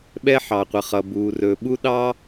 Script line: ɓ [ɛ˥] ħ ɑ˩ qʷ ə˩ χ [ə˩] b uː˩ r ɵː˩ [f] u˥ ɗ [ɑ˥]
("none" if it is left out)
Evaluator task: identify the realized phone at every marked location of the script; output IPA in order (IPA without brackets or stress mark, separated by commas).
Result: ɛ˥, ʌ˩, ɓ, ɑ˥